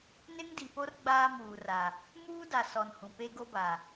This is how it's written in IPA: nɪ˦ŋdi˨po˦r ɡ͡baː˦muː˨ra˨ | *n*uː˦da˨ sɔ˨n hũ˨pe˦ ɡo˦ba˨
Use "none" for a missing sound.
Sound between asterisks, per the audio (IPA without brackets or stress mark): m